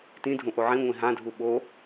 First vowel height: high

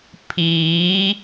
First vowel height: high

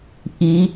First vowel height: high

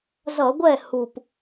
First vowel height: mid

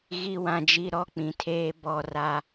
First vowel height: high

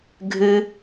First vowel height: high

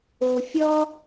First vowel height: mid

